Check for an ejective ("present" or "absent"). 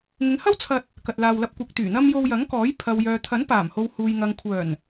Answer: absent